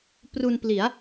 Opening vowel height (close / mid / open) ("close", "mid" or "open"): close